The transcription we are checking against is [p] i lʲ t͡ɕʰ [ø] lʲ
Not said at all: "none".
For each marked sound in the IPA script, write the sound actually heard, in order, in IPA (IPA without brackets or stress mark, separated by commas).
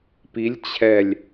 p, ɛ